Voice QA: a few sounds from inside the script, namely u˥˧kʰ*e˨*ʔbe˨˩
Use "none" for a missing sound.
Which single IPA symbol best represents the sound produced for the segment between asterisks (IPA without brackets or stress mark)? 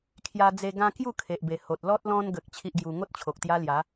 e˨